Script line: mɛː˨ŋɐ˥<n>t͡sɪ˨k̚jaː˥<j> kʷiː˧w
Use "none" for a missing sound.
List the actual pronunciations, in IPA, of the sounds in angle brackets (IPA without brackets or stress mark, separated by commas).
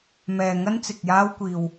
n, w